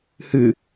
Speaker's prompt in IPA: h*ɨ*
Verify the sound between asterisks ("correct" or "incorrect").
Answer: correct